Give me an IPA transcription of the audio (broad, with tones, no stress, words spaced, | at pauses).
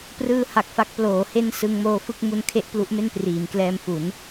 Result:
prɯː˧ ha˨˩k̚fa˦˥k̚ ploː˩˦he˥˩n sɯ˧ŋmoː˧ fɯ˥˩k̚mu˧n kʰe˥˩ʔplu˦˥ʔme˥˩n priː˩˦mklɛː˧mfu˩˦n